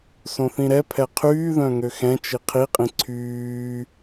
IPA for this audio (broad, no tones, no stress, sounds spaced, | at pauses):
s õ θ ĩ ɾ ɛ pʰ ɛ qʰ yː ð œ̃ ŋ ø x ɛ̃ t͡ʃ i qʰ i qʼ ĩ ǀʰ yː